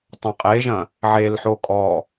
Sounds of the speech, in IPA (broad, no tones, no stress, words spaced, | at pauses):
tˤɐ̃qʼeʒɐ̃ | ʕelħo kʼɔ